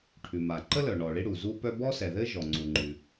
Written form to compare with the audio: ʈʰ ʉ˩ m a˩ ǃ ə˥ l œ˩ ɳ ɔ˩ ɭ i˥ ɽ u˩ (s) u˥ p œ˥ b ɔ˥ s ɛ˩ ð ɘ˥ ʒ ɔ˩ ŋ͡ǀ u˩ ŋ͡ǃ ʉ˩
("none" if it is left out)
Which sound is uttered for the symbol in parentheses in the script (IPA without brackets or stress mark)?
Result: z